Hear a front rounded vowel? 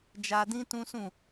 no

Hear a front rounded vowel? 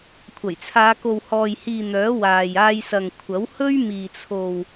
yes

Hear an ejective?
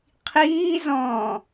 no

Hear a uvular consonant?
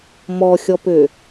no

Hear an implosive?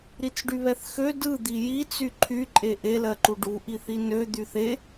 no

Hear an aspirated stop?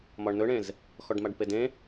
no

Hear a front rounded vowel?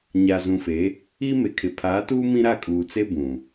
no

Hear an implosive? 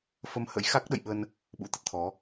yes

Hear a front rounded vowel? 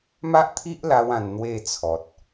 no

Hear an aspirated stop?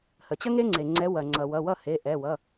no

